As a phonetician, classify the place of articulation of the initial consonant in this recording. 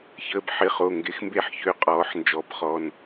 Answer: palatal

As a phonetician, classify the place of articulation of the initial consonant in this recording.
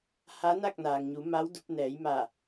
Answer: glottal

